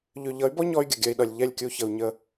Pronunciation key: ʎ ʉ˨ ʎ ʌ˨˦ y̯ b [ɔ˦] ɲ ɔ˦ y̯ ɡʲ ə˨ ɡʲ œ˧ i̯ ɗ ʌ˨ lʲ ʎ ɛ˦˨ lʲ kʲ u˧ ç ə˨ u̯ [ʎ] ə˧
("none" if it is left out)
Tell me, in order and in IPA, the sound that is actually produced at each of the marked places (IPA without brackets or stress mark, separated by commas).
ɔ˦, ɲ